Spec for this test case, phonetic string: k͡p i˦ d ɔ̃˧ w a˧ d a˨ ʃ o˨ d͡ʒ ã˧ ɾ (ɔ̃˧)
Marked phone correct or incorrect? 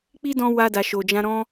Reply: correct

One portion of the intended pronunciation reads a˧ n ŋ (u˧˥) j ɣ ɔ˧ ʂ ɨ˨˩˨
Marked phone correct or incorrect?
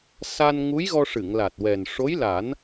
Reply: correct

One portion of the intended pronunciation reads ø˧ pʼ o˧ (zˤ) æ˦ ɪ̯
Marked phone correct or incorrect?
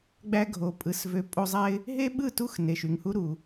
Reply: correct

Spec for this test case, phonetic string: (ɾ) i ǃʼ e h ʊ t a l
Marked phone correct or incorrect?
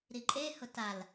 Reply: correct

